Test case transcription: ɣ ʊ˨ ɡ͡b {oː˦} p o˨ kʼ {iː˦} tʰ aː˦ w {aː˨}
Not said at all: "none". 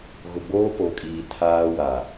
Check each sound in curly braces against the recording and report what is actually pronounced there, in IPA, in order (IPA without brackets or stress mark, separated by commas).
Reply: oː˦, iː˨, a˨